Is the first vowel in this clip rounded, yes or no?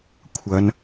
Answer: no